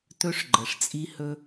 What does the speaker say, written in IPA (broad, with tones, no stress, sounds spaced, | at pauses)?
t ɵ˦ ʂ ɡ͡ǃ ə˨ ʂ t͡sʼ i˦ h ɵ˦